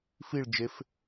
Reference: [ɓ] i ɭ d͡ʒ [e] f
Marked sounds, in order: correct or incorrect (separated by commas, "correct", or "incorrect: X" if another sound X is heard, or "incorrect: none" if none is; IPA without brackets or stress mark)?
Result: incorrect: f, correct